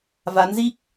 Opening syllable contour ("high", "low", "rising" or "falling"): rising